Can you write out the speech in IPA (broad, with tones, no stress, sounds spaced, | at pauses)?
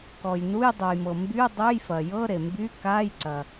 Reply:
k ɔ˩ j n u˧˥˧ j dˤ u˩ j m ɤ˩ m b y˧˥˧ dˤ ø˧˥˧ j f ɐ˩ j ɤ˧˥˧ ɾ e˩ m b y˧˥˧ k a˧˥˧ j ǀ ɐ˩